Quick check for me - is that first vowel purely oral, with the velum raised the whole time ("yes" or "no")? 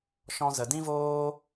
no